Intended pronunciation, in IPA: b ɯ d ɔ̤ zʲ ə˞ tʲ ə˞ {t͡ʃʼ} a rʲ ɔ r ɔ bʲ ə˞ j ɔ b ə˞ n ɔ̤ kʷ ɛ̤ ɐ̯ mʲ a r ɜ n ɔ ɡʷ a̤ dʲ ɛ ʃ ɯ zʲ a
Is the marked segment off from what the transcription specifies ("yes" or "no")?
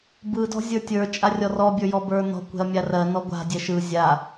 no